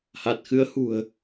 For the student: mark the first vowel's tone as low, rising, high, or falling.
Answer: low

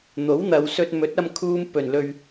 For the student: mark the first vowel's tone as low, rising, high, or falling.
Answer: rising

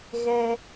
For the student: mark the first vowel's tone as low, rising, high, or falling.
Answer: high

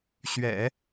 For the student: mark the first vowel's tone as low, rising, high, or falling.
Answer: low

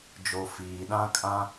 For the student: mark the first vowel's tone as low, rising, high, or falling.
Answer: low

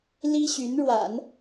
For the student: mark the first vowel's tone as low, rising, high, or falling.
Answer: high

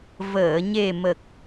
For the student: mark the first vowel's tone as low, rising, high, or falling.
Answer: low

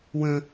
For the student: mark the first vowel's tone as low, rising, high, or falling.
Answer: high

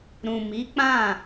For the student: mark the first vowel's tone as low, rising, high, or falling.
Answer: low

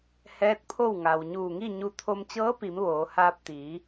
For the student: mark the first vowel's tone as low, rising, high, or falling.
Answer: rising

